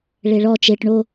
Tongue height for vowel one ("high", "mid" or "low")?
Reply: mid